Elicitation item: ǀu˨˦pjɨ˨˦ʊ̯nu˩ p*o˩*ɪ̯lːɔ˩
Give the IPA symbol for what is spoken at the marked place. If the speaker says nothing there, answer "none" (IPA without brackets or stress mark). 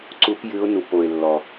o˩